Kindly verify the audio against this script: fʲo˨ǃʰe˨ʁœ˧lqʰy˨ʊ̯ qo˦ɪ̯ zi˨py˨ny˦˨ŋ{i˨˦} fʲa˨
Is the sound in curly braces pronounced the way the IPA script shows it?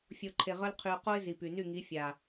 yes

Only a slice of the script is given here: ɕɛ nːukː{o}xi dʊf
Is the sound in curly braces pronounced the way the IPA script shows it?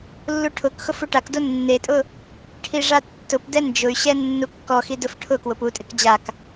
no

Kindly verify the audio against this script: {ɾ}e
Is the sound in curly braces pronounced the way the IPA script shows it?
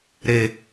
yes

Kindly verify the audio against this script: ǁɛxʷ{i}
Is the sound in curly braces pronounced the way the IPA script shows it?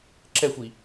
yes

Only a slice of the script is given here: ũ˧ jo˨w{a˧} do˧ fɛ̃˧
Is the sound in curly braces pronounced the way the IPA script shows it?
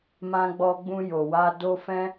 yes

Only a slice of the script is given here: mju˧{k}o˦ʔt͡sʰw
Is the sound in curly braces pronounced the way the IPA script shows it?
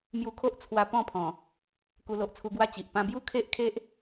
no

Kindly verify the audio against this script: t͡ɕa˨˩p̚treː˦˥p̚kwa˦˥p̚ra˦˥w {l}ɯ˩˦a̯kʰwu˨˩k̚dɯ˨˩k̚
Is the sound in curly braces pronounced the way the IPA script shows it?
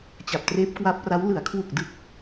yes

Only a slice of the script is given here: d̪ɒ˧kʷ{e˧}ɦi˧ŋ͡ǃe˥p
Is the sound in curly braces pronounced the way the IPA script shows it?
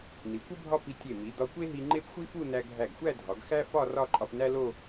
no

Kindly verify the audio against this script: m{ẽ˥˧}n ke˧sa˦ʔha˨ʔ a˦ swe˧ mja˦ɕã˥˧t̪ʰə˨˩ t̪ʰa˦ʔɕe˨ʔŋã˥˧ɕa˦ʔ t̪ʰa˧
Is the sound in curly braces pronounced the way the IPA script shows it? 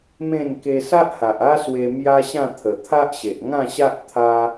yes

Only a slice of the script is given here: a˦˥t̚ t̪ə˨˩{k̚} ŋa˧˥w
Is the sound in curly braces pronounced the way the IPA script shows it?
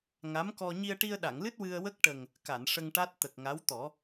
yes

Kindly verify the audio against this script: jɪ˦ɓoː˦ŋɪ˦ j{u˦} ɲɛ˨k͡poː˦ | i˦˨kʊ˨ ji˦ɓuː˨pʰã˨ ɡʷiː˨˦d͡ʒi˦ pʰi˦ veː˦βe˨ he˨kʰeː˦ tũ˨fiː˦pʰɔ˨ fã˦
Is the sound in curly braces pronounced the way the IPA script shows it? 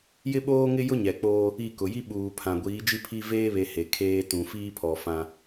no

